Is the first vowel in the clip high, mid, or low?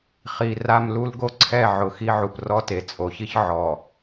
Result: high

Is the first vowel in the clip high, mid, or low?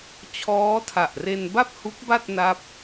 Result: mid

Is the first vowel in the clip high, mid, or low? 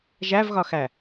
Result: low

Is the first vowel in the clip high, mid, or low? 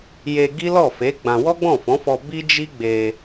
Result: mid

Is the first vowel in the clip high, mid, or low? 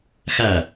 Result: low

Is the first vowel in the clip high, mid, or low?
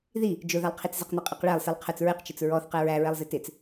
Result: high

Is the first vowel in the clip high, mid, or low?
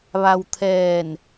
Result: low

